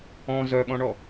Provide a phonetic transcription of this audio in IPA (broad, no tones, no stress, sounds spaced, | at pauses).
ɔ̃ z œ ɠ ɔ̃ ɳ ɔ